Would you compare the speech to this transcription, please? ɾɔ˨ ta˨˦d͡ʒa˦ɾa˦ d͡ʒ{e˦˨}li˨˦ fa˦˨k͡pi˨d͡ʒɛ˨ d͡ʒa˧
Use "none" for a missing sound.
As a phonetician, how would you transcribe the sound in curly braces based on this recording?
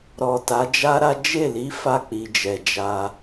e˦˨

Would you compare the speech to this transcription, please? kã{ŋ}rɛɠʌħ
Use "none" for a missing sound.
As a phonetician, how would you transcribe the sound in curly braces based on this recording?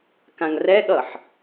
ŋ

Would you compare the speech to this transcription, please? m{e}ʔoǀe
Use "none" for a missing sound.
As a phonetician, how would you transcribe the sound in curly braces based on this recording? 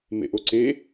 ḛ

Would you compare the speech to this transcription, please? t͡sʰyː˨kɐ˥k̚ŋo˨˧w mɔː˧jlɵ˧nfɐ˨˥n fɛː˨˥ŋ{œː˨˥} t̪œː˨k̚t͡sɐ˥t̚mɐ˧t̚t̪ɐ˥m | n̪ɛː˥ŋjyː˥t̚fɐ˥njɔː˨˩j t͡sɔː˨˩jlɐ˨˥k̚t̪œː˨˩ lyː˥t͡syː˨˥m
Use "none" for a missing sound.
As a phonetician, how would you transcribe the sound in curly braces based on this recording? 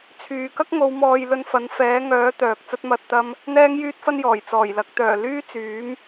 œː˨˥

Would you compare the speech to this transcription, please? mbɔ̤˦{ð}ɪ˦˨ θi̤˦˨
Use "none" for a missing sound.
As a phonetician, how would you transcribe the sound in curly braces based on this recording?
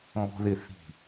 ð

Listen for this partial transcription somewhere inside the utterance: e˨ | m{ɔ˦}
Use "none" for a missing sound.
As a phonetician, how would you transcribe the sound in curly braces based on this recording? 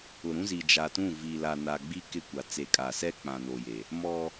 ɔ˦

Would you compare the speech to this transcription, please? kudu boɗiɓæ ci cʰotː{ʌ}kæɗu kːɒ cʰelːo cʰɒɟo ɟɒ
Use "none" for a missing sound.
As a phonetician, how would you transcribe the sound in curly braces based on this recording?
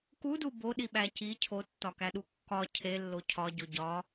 ɒ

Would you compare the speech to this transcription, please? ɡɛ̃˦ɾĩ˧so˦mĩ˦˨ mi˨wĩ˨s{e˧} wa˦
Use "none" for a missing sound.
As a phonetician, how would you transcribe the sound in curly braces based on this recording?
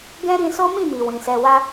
ɛ˧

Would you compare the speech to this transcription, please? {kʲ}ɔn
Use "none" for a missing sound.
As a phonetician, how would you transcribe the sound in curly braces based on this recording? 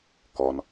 k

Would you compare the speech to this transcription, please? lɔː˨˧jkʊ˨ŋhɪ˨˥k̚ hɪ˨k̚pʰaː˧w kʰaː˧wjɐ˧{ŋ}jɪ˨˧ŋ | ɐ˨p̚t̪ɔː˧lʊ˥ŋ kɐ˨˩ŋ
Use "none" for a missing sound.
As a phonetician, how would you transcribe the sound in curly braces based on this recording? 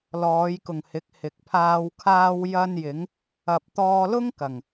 n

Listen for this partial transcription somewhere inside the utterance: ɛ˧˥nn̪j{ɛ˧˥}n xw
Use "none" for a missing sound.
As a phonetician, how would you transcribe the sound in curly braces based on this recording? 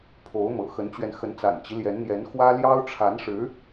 ɛ˧˥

